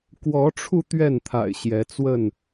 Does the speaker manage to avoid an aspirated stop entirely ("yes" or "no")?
no